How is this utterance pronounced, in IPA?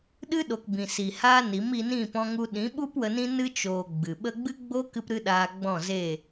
ɗɨ˦ɗo˨k bĩ˨si˨haː˦ ni˨˦mi˧ nĩ˦˨pɔ̃˧ŋu˧ ɗĩ˨˦ɓu˦p wə˧nĩ˦nɨ˦ t͡ʃoː˨ ɡ͡bɨ˨ ɓə˧ɡ͡bɨ˦ ɡ͡bo˦kɨ˧pɾɨ˧ ɗaː˧ɡ͡bɔ̃˦˨ze˦˨

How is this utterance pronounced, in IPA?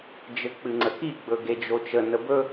d͡ʒɘk͡pɨŋ͡ǀəki ɡ͡bɵɡed͡ʒot͡ʃə nəbɵ

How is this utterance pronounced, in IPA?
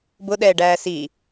bʊɗɛːɖæː si

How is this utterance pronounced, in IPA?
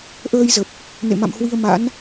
ʔəː˧jzə˨˩p̚ | nḛ˧˨ma̰˧˨mhwi˧ə̯ma̰˧˥n

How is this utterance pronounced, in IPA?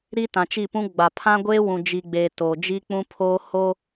ɾi˦tã˨t͡ʃi˦˨pũ˦ ɡ͡ba˨pʰã˦ɡʷeː˦wũ˨ d͡ʒi˨ɡ͡beː˨ to˨ d͡ʒi˦k͡pũ˦pʰoː˦ hoː˦

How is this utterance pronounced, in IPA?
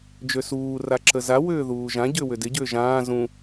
d͡ʒøsuː raǁəza wʏːðuːʒã ɟʏːwʏdɪ ɟʏːʒãː zũ

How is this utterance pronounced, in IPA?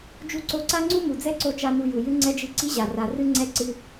d͡ʒu˧ǀo˧ǀa˦ŋ͡ǀu˦ mu˨d͡zɛ˦ǀo˧ t͡ʃa˦nu˧ju˨ jɨ˦ŋ͡ǀɛ˦d͡ʒɨ˦ ǀi˦ʑa˨ ra˨rɨ˦ŋ͡ǀɛ˦ ǀɨ˦

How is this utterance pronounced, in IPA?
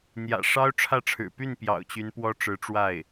n̪jä̰˨˩ʂɑ˥ʊ̯ʈ͡ʂʰä˥˩ʈ͡ʂʰɻ̩˨˩ py˥˩npjɑ̰˨˩ʊ̯ t͡ɕy˧˥npwɔ˥ʈ͡ʂɻ̩˧˥ ʈ͡ʂwa˥˩ɪ̯

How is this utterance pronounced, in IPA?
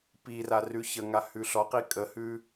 pira rʉçəŋa hʉɬɔqi kʼəhʉ

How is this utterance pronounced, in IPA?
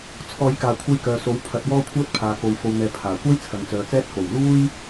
t͡sʰɔː˨˧jkaː˨kʷʰɐ˧j kœː˨so˨˥w pʰɐ˨˥t̚wɔː˥kʷʰœː˥t̚ pʰaː˨ko˨w fo˨wn̪ɛː˨ pʰaː˨˩kʷɐ˥j t͡sʰɐ˨ŋt͡sœː˨t͡sɛː˥t̚ ko˨˩w luː˥j

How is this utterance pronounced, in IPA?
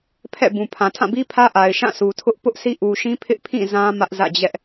pʰɛ̰˦˨bũ˨pʰã˨ tʰã˦˨bi˦pʰä˦ ʔa˨ɪ̯ʃã˦˨sʰu˨tʰʊ˦ʔ pʊ˦ʔsʰi˦ʔu˨ʃĩ˦ pʰɪ˦ʔpʰĩ˦˨ zã˦ mä˦ʔzä̰˦˨d͡ʑɛ˦ʔ

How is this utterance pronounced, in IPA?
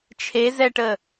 t͡ʃʰezɛʈəː

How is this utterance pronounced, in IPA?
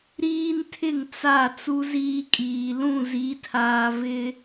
ɾiː˦ntʰɪ˦˨ŋ t͡sa˦˨ t͡su˦ ziː˦kʼiː˨ lũ˦˨zi˨˦tʰaː˨ vɪ˦

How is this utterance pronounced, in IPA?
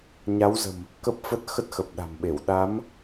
ɲa˨˦wzə̤˨˩m | kə˦˥p̚fə˦˥t̚ xə˦˥t̚xə˨˩p̚ɗa̤˨˩mɓe˧˩w ɗa˨˦m

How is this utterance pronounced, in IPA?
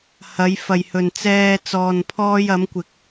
hɐ˨˧jfɐ˨jhɵ˨nt͡sɛː˧ t͡sɔː˨npʰɔː˧j ɐ˨˧mkʷɪ˨˥k̚

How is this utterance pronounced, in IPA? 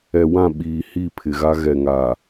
ɛ˨wã˦˨ ɓiː˨hi˦˨pʰɪ˨ɣa˦ ɣɛ˨ŋa˨

